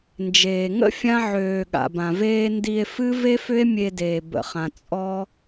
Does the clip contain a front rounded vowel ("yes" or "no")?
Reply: yes